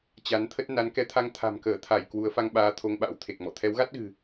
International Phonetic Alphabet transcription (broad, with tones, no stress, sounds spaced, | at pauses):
t͡ɕ a˨˦ n t̪ʰ ə˦˥ t̚ n a˨˦ n k ɛ˨˦ t̪ʰ a˧ ŋ t̪ʰ a̤˨˩ m k əː˧˩ t̪ʰ a˧˩ j k w u˨˦ ə̯ f a˧ ŋ ɓ aː˨˦ t̪ʰ o˧ ŋ ɓ a̰˧˥ w t̪ʰ e˨˩ k̚ m ɔ̰˧˨ t̪ʰ ɛ˨˦ w ɣ a˦˥ t̚ ɣ ɨ̤˨˩